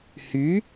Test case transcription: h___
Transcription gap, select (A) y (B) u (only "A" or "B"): A